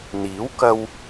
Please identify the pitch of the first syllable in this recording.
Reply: rising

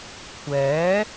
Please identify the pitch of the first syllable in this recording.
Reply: rising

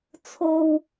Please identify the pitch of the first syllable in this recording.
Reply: high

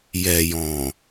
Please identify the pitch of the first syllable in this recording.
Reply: low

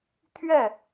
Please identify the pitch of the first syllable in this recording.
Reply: falling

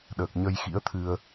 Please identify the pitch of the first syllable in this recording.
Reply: low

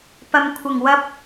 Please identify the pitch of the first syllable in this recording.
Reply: low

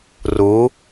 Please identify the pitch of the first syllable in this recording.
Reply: rising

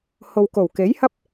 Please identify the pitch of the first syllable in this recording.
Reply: low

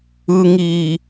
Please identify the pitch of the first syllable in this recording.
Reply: low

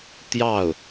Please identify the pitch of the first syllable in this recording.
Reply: falling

